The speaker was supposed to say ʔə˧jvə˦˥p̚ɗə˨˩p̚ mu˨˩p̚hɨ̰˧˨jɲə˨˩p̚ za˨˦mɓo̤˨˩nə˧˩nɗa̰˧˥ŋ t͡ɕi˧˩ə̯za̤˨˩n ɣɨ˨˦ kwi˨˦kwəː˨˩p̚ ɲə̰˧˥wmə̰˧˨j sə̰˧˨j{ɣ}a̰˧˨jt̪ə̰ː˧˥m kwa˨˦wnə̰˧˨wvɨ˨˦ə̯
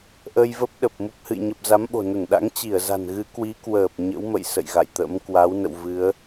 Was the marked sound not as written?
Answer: no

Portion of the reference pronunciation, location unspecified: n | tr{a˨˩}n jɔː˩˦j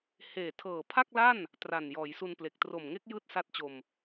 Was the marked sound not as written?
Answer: no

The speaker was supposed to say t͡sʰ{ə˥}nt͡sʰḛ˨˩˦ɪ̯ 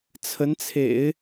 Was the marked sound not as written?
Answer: yes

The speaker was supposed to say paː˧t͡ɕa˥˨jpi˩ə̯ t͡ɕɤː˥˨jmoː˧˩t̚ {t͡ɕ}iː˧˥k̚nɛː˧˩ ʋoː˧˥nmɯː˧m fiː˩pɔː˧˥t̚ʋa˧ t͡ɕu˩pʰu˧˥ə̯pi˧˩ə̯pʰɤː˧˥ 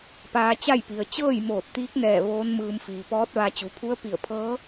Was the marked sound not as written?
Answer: yes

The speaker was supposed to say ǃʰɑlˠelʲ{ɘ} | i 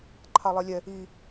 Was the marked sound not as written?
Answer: yes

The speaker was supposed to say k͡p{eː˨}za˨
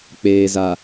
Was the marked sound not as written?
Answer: no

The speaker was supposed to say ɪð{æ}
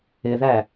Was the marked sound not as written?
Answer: no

